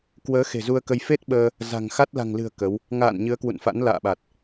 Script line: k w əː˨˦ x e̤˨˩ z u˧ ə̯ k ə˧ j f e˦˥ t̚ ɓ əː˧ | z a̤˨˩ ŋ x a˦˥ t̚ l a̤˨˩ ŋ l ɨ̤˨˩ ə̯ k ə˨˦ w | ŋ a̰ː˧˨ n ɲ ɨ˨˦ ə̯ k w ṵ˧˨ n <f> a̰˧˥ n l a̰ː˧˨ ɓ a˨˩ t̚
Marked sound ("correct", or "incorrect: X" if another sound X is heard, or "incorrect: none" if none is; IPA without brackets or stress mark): correct